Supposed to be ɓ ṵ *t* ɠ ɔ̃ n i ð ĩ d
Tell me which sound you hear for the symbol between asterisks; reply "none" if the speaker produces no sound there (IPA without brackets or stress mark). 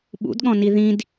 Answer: d